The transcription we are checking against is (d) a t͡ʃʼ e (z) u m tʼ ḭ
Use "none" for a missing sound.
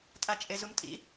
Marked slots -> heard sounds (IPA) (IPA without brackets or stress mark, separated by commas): tʼ, z